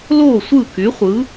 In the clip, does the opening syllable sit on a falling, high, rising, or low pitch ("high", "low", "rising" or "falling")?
falling